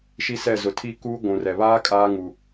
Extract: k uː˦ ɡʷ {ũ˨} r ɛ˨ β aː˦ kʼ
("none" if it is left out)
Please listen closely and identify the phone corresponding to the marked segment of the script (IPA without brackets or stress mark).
ũ˨